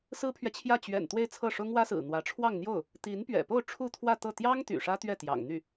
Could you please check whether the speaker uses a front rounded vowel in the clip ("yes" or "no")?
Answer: yes